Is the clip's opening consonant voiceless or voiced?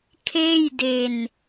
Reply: voiceless